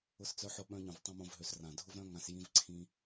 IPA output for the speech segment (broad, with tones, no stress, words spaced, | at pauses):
ʊ˧st͡sœ˧ħʊ˧ɓœ̃˧ ɲœ̃˨vtˤĩ˧mõ˧vɦø˨˦s rã˨dʱʊ˦vɾœ̃˦ŋã˧s jĩ˦vǀʰĩ˦